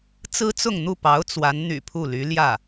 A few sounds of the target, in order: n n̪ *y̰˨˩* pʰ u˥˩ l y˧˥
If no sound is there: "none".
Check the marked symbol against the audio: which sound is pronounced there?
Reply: y̰˨˩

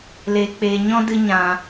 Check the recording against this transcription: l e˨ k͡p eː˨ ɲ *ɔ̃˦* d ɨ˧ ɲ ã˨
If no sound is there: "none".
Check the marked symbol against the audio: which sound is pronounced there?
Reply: ɔ̃˦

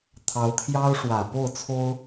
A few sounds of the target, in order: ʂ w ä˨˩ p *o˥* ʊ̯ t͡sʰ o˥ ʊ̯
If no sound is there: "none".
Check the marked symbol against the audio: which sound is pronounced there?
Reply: o˥˩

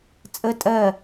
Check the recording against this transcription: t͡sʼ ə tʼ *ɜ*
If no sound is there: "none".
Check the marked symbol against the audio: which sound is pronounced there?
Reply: ɜ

